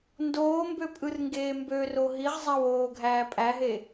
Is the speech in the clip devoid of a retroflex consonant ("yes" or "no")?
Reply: yes